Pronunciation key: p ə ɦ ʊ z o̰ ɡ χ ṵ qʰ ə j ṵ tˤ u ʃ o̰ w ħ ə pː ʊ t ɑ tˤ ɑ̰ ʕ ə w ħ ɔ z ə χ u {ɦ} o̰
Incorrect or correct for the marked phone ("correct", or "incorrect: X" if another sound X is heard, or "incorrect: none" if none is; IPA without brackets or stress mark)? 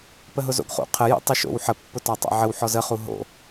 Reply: correct